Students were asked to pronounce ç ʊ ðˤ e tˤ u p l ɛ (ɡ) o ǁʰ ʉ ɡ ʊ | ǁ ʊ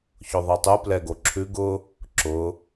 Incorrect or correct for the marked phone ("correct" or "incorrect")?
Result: correct